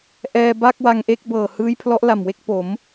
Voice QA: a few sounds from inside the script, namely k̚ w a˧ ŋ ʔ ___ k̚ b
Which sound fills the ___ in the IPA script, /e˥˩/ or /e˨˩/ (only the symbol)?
e˥˩